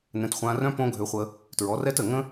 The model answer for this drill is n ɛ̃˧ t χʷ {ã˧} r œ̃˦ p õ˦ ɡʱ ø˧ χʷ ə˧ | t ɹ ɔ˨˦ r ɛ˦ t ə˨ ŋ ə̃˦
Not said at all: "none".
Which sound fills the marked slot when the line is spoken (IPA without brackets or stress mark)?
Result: ã˧